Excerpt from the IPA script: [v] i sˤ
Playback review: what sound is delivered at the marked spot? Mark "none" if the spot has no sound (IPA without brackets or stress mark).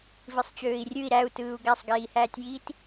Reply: v